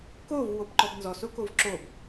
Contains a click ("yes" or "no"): yes